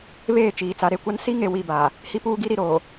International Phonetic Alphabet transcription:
β eː˦˨ t͡ʃ iː˨ t͡s a˨ ɾ e˦ kʷ a˦ n s i˦ ŋ e˨ w i˦˨ b aː˨ | h i˦ p uː˦ ɡ i˦ ɾ i˨ ɾ oː˨

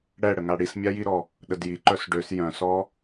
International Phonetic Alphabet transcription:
ɽ ɛ ɽ ə ŋ a ɽ i s mʲ a j i ɾ ɔ | ɗ ə d j i ǃ œ s ɖ ø s j œ̃ s ɔ

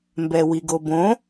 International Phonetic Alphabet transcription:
m b ɛ w i ɡ o b õ

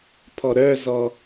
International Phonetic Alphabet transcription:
pʰ ɔ ɾ œ z ɔ

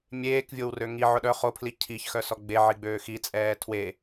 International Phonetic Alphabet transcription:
mʲ eː k vʲ o w r ø ŋ i ʕ ʊ ɗ œ χ o pʰ l i cʰ i ç x œ s ɔ ɡ͡b e ʕ i ɡ͡b øː x i t͡sʼ ɛː tʰ w e

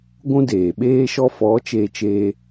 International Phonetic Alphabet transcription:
ɡʷ ũ˦ d eː˨ ɓ eː˦ ʃ ɔ˦ f ɔ˨˦ t͡ʃ e˧ t͡ʃ eː˧

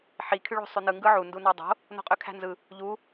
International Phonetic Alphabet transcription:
ħ i kʰ y ɭ o̤ sˤ y n ɯ ŋ ɡ ɯ ʕ u n d u n ɑ dˤ o̤ | n o̤ qʼ ø kʰ æ̤ n z ɯ | ʎ u

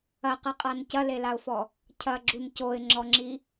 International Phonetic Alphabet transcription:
ɐ q ɨ qʼ a n c ɐ l e l a ʊ̯ f ɔ | cʰ ɐ ɡ͡ǁ u n c o ɪ̯ ŋ͡ǁ ɔ ŋ͡ǁ i

